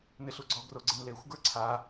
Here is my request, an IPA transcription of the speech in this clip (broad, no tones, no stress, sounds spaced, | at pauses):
n ɪ ɬ u ɡ͡ǀ ɔ ɡ r o ɡ͡ǀ ɪ n l e xʷ ɡ ə˞ ǀʰ a